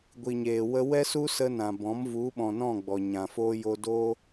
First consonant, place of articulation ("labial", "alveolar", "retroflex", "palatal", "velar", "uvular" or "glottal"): velar